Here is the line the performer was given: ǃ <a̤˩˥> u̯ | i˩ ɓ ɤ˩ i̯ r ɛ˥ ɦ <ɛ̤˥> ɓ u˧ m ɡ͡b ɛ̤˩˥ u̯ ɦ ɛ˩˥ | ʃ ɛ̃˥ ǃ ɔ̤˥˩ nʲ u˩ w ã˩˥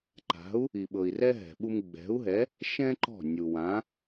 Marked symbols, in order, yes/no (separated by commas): yes, no